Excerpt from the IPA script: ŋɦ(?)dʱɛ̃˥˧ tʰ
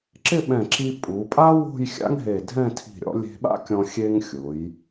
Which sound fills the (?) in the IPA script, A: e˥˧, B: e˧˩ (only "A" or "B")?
B